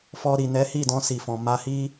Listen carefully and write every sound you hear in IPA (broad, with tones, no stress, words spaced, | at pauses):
fɔ˧ ɾi˨nɛ˨˦ hi˦˨dɔ̃˧si˨fɔ̃˨ ma˧hi˦